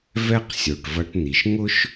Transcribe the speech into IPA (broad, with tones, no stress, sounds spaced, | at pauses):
v ɛ˦ q sʲ o˨ ʈ v ɐ˧ ʈ n̪ i˨ ʃ ŋ ʊ˦ ʃ